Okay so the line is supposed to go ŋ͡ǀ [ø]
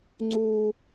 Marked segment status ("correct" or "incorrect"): incorrect